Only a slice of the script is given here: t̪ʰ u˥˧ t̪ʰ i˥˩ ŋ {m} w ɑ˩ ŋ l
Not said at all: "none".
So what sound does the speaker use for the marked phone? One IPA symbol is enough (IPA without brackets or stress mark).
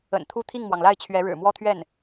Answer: m